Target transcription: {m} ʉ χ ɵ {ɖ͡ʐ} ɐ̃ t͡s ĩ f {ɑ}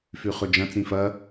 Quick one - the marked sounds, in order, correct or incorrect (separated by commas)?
incorrect, incorrect, incorrect